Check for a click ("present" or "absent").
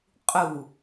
absent